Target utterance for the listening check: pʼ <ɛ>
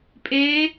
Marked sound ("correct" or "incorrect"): incorrect